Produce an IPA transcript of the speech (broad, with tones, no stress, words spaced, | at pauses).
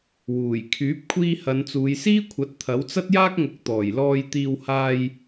wuː˨˩j kʰyː˨˥p̚kʷʰiː˧ hɐ˨˧nt͡suː˨˧jsiː˥kʷʰɐ˨˥t̚ t̪ʰɐ˨˥wt͡sɐ˥t̚jaː˥k̚ŋʊ˨˥k̚ t̪ɔː˨˩jlɔː˧j t̪iː˧w haː˧j